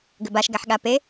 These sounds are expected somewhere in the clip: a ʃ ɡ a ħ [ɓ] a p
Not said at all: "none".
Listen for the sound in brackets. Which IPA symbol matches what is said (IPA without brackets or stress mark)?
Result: ɠ